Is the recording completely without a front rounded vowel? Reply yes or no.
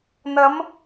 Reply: yes